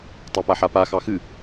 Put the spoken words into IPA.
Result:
tˤopaħapa xɑxɨ

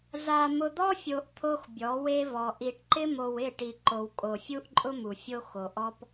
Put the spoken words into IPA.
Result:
za˨ mʊ˨d̪ɔ˦fʲo˨ʔ t̪ʰo˦xbʲɔ˨˦we˦vɔ˨ ʔi˨ʈǃɪ˦mo˨w ɪ˦˨ʈi˨ǃo˨w kʼo˨fʲu˦ʔǃʼʊ˦ mu˨fʲo˦ xo˨ʔɔ˦p

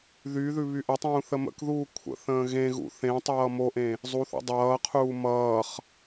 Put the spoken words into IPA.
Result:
ðyðʉ βyʔətˤũː θəmə̰kðuː kʷʰə̰ θə̃ːɣẽɣṵ θẽtˤʌː moʔẽ | zˤuθṵ dˤʌːqʰuː mʌːχ

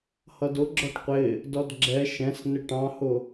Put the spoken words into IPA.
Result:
hʌdʊ ɡ͡ǁɔʈqʷɪ | dɔdɡ͡ǁɛ ʃɛ̃s nɪʈɑ̃hʊ

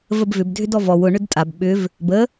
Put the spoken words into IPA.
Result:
vəbvʏb dʱʏdɔvɔw ʊ ɳʏdtʼab ɓʏv | bə

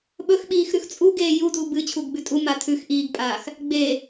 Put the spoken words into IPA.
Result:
ɓɵx ɓiːxɾʉxt͡sʼu ɡeːjudu bɨ t͡ɕʰuɡɡ͡bʉtʼu matʰʉx ʔiːɡpʼaːx | ɡ͡be

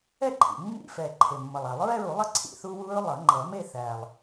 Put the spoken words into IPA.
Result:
ɛ˥˧ǃʰḭ˨˩ mːḭ˦˥fɛ˨˩ ǃʰe˨˩mːʌ˨˩lˠa˨˩˦lˠ ɹɛ˥˧ɹu˨˩˦lˠʌ˥˧ ǀʰḭ˥˧θu˦˥ wu˦˥ɹlˠʌ˨˩˦ ŋ͡ǃʌ˨˩˦me˥˧ θæ˨˩lˠ

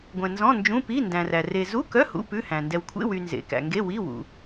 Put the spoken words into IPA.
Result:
ɡʷɛ̃˨nzɔ̃˧˥˧nd͡ʒũ˧˥˧ pi˧˥˧ndæ̃˨ræ˨ re˨zu˧˥˧kœ˧˥˧hṵ˧˥˧ pʉ˧˥˧hæ̃˨ ndɛ˨wkʷʰḛ˧˥˧wy˨ nzḛ˨kæ̰˨ ŋɡe˧˥˧wi˧˥˧wṵ˨

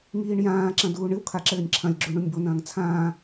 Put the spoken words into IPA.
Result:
ŋiːɳjãːǁɐ̃ duːɳɨwkʰa ǁɘːnʲǁʰɐ̃lʲɡ͡ǁu ɳunʲbonɐ̃ːŋ t͡sʰãː

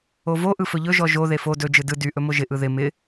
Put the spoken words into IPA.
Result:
ovo ʔɯfɵʎɵ ʒɔʒo ðefo dɵ d͡ʒɯdɯ dy ʔɵmoʒɪ ʔɯðɪ mɪ

